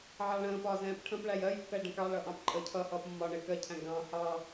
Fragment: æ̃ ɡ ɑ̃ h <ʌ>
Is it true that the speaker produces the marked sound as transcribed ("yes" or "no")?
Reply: no